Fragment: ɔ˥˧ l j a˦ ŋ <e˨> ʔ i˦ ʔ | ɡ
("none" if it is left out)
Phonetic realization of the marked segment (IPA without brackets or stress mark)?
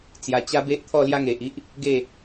e˨